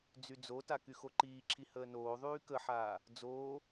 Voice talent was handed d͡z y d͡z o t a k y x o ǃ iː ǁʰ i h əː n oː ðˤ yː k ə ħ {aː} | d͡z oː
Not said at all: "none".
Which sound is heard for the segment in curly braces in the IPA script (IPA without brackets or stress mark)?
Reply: aː